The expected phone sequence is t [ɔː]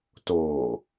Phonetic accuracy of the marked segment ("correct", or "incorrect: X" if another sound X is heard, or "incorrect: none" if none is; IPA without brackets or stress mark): incorrect: oː